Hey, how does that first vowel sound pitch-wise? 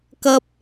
high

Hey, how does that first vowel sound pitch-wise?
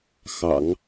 low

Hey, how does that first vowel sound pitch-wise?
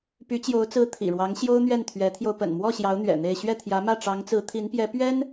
rising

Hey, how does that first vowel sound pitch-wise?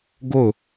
falling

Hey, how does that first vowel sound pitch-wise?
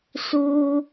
high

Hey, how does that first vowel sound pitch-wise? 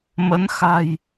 rising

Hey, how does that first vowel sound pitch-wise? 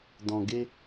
low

